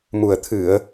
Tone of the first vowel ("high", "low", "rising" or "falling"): low